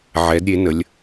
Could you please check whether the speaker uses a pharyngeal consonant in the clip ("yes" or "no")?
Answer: yes